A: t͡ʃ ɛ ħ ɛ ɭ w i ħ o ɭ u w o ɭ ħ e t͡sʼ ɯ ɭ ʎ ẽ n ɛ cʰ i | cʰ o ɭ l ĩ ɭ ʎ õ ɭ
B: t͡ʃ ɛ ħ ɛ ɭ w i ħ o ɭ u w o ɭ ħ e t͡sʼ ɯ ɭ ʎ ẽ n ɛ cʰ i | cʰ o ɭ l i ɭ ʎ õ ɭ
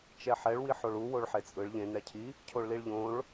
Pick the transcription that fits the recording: B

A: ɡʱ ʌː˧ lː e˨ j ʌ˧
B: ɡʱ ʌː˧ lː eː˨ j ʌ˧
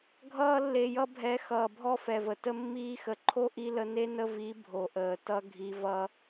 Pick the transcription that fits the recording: A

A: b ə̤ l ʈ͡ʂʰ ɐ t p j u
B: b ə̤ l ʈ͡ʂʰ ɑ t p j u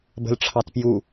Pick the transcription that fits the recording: B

